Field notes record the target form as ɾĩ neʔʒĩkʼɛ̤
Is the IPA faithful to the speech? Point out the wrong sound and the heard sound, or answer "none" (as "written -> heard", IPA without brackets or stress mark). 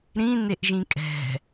none